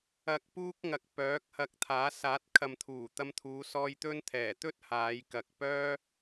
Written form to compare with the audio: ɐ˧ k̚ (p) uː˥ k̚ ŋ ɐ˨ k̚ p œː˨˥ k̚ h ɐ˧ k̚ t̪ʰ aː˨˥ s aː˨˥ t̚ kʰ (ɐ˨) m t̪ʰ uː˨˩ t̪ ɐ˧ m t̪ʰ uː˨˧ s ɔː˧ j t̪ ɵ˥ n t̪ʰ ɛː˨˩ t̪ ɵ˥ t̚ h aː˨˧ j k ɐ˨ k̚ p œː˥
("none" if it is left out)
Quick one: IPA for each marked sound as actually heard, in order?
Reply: p, ɐ˨

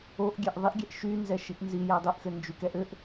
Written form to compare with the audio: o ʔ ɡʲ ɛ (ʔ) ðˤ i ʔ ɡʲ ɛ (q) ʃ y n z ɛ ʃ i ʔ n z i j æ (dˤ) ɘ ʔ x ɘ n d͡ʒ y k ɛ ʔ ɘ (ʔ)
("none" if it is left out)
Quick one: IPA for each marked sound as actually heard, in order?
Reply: ʔ, ʔ, dˤ, ʔ

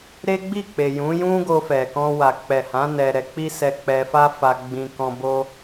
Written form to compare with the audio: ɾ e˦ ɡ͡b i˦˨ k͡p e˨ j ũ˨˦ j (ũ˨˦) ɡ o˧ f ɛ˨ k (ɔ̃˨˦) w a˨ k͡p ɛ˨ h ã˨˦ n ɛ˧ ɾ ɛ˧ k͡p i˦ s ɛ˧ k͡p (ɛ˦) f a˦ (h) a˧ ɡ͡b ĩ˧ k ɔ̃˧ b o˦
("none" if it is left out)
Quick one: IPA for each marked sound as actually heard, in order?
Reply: ũ˦, ɔ̃˧, ɛ˧, f

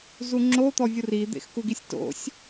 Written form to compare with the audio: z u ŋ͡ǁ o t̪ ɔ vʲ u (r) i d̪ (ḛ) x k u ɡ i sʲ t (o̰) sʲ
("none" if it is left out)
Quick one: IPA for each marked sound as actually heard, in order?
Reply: r, ḛ, o̰

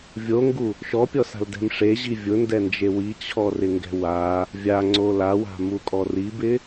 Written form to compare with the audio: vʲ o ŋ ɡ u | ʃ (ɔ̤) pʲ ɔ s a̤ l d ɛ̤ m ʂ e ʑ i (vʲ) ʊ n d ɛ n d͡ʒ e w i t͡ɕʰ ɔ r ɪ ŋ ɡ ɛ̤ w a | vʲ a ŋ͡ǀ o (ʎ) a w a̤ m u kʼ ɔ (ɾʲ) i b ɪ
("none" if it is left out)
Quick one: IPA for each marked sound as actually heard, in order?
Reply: ɔ, vʲ, l, r

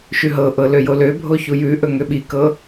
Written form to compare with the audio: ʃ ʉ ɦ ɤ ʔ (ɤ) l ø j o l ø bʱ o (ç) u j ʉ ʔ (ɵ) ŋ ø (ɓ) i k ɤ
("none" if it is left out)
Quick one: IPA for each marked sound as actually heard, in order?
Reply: ɤ, ç, ɵ, ɓ

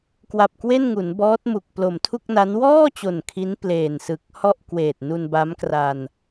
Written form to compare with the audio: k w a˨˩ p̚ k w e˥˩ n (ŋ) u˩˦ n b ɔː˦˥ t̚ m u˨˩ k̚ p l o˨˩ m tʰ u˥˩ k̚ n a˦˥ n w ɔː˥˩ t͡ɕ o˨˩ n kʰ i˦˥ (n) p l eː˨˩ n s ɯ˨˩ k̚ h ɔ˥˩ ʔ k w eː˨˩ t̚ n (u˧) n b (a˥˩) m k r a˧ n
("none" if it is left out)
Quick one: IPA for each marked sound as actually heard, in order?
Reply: ŋ, n, u˧, a˦˥

